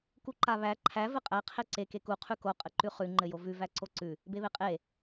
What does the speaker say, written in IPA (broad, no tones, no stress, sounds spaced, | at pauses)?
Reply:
k u ǃ a β æ ǃʰ æ v ɘ qʼ æ qʰ e ǀ e k e k u qʰ ʉ k o qʼ ɘ ǃ ʉ χ ʉ ŋ͡ǃ ɘ j o v ʉ v æ ǀ o ǀ ʉ | b e β e qʼ e